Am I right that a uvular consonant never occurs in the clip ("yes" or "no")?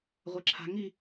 no